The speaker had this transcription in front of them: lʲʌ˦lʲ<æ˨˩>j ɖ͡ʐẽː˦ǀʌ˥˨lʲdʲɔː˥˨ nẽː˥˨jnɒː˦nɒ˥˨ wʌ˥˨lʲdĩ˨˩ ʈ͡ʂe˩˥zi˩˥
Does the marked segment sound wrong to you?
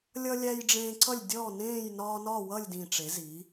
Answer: yes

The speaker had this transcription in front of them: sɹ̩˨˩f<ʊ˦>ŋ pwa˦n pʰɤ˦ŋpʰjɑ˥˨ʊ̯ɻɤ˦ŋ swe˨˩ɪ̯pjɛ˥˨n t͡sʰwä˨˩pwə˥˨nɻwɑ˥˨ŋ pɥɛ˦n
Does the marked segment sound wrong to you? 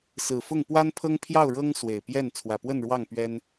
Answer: yes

